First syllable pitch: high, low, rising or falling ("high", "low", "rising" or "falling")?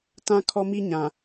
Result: high